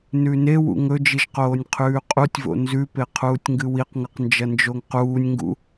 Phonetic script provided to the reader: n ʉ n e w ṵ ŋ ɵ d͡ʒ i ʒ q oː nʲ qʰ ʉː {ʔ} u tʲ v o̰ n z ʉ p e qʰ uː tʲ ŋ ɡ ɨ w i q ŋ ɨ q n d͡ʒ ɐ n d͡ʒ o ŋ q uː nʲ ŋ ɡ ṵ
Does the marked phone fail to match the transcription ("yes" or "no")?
yes